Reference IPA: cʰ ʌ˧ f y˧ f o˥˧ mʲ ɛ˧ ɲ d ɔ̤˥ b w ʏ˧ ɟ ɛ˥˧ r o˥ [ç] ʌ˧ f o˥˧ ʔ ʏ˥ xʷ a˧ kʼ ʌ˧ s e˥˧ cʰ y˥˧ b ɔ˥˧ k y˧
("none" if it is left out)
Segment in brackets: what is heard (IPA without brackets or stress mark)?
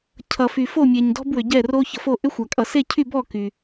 ç